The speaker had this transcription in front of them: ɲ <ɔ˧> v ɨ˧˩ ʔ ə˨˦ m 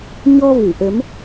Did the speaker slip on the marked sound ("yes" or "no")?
no